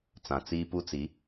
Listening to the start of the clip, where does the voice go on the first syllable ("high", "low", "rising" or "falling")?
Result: low